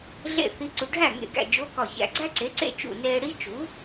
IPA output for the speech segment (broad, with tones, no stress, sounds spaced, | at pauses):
ɮ ḛ˥˩ θ i˧˥ ǀ u˧ ɖʱ æ˥˩ ŋ ḛ˧˩ ɡ æ̰˧˩ d͡ʒ o˧˥ k ɒ˧˩ ç æ̰˧ ɡ͡ǀ æ˥ ǀ e˩˥ ǀ ḛ˥˩ t͡ʃ ṵ˧˩ n eː˧ ɽ i˥ t͡ʃ u˩˥